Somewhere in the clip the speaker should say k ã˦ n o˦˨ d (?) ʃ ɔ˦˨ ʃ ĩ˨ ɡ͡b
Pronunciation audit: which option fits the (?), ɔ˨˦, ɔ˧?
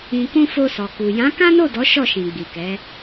ɔ˨˦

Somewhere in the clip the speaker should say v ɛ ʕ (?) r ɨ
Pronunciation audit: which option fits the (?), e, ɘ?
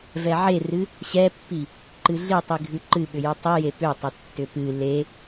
e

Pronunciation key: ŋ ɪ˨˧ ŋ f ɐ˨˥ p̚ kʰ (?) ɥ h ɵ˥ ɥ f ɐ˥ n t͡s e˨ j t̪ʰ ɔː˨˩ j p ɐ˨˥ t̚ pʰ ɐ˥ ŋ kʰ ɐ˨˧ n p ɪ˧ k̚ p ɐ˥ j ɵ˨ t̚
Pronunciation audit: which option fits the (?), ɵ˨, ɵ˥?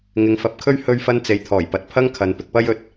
ɵ˥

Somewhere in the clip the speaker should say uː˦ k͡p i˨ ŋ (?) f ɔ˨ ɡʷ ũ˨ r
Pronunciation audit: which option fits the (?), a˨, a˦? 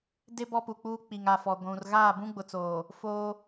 a˨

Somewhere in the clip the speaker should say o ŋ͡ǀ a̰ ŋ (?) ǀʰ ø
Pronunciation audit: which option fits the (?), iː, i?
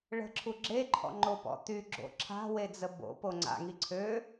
i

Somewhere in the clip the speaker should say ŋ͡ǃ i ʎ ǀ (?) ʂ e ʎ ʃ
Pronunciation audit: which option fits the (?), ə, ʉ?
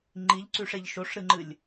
ʉ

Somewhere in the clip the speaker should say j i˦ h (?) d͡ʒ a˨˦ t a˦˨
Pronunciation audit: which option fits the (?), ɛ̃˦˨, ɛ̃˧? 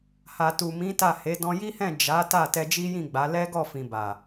ɛ̃˦˨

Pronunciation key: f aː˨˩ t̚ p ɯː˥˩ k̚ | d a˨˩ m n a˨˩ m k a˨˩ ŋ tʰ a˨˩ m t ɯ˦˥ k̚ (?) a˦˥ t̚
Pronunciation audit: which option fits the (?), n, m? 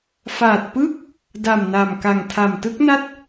n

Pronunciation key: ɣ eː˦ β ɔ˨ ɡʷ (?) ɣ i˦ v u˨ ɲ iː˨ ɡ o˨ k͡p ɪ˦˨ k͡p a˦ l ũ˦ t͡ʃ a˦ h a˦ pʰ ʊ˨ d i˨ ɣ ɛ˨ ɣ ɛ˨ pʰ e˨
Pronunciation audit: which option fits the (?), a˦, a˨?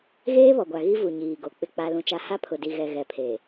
a˨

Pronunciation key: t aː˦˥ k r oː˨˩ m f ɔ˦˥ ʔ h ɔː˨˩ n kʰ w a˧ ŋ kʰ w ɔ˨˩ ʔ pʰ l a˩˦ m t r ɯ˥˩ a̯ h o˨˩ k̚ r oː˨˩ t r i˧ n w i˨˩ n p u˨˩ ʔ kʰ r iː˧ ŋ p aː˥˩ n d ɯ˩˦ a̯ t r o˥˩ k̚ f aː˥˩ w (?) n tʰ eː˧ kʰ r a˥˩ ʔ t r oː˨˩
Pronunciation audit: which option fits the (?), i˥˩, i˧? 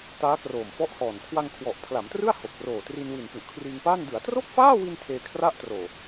i˧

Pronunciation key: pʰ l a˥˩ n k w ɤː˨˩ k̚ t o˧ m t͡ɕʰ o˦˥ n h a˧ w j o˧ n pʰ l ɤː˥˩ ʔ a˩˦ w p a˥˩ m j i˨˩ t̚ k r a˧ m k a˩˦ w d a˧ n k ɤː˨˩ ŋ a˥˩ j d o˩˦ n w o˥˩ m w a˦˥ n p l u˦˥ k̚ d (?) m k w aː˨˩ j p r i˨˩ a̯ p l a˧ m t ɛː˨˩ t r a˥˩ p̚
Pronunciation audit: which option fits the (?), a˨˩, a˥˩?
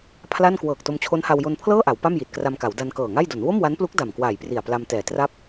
a˨˩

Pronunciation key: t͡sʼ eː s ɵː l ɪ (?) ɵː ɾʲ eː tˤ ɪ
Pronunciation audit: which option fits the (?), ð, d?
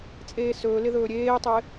ð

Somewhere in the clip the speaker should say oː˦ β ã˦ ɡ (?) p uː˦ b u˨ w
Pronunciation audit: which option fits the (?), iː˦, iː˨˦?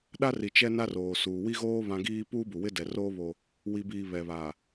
iː˦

